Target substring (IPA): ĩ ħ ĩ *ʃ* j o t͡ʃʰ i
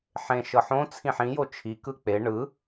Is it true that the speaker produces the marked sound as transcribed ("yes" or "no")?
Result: no